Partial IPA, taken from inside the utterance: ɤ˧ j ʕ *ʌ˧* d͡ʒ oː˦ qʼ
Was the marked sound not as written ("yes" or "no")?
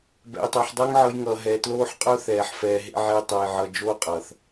no